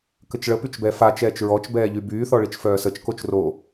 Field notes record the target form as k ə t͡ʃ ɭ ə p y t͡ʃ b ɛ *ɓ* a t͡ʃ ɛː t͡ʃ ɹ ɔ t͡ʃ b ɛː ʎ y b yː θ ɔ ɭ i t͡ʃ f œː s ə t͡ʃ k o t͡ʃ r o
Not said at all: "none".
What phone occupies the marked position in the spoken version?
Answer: f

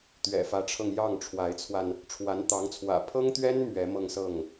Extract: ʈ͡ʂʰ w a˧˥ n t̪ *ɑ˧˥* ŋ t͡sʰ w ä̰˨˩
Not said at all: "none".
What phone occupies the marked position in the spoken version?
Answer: ɑ˧˥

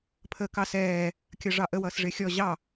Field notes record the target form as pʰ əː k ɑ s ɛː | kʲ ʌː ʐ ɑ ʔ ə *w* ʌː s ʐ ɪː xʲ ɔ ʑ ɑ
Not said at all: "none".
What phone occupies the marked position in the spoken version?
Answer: w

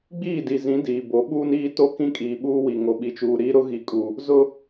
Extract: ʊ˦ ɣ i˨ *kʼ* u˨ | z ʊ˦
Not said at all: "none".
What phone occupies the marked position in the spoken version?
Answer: kʼ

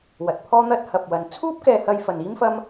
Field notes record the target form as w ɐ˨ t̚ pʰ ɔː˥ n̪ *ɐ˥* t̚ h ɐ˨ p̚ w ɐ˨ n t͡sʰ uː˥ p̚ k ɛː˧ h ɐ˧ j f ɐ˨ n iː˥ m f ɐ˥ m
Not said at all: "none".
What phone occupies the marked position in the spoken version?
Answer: ɐ˥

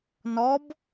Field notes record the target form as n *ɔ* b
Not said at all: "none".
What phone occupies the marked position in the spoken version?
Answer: ɔ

